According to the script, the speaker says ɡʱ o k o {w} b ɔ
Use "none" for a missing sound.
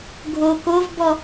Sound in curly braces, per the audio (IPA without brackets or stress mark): v